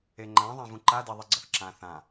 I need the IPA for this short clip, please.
e ŋ͡ǃ ã ðˤ ã v ũ ǃ a d e ðˤ i ɡ͡ǀ ʌ θ ǁ ã θ ã

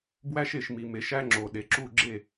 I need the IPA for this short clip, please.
b w æ˦ ʃ e˩ ʃ m i˩ m e˩˧ ʃ æ˦ ŋ͡ǁ o˩ ɗ e˩ ǁ u˥˨ ɡ͡ǁ e˥˨

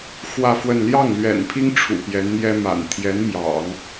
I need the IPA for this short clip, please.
x w ä˥˧ f w ə˥˧ n l j ɑ˥˩ ŋ l ɥ ɛ̰˨˩ n pʰ i˥ ŋ ʈ͡ʂʰ ṵ˨˩ p j ɛ˧˥ n n̪ j ɛ˥ m a̰˨˩ n t̪ʰ j ɛ˧˥ n m j ɑ̰˨˩˦ ŋ

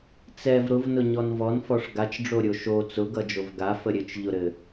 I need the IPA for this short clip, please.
t͡s ɛ v ɾ ʊ v n ʊ ɲ ɔ n v ɔ n f ɔ ʂ ɡ a t͡ʃ ɖ͡ʐ o ɾʲ o ʃ o t͡s ʊ ɡ ʌ d͡ʒ o v ɡ a f ə ɾʲ ɘ t͡ʃ ʎ ʊ ɾ ɘ

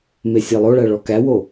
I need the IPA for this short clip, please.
m e sʲ e lˠ o ɭ æ ɭ ɔ k æ w o

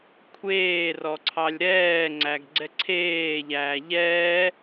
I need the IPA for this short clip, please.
kʷʰ eː r ɔ ǀʰ ɑ lʲ ɾ ɛː ŋ͡ǀ æ ɡ ɡ͡ǀ ɛ ǀʰ eː ʎ æː ʎ ɛː

